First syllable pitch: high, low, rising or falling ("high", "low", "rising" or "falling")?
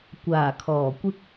low